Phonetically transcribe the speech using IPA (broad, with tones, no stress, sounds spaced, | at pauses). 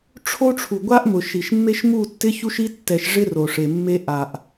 ʈ͡ʂʰ o˦ ʈ͡ʂʰ u˨ ɡʷ a˦ ʔ m ʊ˨ ʃ i˨ ʃ mː e˦ ʃ m u˦˨ tː ɪ˦ ç u˦ ʃ i˦ tː ɛ˨ ʃ ʐ ɪ˦ r o˨ ʂ e˨ mː e˦ ʔ a˨ ʔ